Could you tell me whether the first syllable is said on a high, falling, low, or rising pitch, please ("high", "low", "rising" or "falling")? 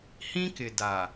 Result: high